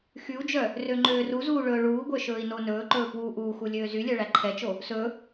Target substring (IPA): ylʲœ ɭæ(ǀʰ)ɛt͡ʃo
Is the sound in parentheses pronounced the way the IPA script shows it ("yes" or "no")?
no